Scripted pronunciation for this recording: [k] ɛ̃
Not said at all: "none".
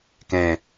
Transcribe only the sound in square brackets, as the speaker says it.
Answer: k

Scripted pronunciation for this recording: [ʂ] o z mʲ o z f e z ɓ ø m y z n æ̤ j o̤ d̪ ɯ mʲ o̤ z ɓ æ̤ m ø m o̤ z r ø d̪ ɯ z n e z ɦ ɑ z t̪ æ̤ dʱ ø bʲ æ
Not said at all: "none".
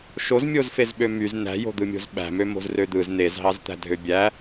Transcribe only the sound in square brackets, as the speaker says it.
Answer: ʃ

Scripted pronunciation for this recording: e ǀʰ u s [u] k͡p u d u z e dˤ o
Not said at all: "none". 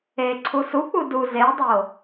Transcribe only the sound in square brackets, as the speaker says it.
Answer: u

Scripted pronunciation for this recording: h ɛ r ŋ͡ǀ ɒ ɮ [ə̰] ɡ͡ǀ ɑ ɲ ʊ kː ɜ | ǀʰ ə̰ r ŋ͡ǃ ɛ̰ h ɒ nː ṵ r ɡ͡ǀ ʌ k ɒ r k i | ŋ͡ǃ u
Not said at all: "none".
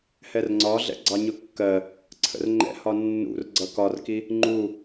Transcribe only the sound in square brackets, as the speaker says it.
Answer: ɛ̰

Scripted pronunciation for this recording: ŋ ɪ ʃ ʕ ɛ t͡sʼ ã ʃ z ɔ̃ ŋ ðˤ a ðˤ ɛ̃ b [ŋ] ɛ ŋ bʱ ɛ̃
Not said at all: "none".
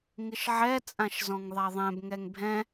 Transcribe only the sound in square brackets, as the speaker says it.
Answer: ŋ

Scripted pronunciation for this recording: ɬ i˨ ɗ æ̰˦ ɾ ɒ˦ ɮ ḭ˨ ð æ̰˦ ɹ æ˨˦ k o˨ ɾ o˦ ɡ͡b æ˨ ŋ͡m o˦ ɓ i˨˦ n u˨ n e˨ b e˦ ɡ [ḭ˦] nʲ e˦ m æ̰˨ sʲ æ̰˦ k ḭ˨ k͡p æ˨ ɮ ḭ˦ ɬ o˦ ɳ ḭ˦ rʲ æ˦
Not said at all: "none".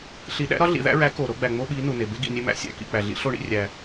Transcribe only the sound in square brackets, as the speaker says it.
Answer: ḭ˨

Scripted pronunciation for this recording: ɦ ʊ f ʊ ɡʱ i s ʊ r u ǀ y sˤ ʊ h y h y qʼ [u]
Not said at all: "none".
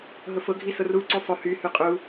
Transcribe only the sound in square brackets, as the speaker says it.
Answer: u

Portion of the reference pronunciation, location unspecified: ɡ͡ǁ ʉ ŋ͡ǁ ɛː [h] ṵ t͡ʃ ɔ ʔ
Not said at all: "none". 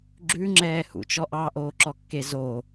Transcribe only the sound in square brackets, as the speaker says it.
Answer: h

